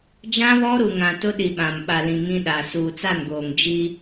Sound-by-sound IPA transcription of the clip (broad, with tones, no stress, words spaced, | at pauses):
d͡ʒã˦βɔ˦ ɾu˨ŋã˨tʊ˦ ɗi˨ɓã˨m ɓa˨lĩ˨ ŋĩ˦ɗa˨ suː˨t͡sa˦˨nɡoː˨ŋ d͡ʒi˦